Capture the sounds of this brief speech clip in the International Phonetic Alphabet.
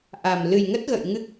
ʔ a˨˩ m l ɨ˨˩ j ŋ ə˦˥ t̚ ɣ ə̰ː˧˨ j ŋ ɨ˦˥ k̚

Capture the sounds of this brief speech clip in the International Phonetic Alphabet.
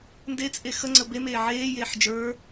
n d e t͡sʼ e x ə ŋ͡ǀ ə b e m eː ʕ eː j eː ħ d͡ʒ ə˞

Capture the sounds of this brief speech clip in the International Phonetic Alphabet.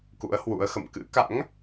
k ṵ˧˥ ə̯ h w ṵ˧˥ ə̯ x ə̰˧˨ m k ɨ̰˧˥ k a̰˧˥ ŋ

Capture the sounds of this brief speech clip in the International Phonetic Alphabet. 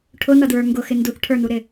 ʈʰ ʊ n ʌ d ɹ ə˞ ŋ ɡ ʊ x ɪ n d u θ ʈʰ ə˞ n u ɾ ɪ

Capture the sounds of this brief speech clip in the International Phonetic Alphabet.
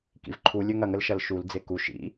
k ḭ v ǃʰ u lʲ ø ŋ ɐ ŋ ə l ʃ ɐ l ʃ u l d͡z e k u ʃ ḭ

